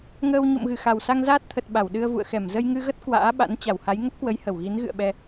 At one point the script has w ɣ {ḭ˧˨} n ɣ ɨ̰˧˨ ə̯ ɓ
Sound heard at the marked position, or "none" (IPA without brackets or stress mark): i˨˦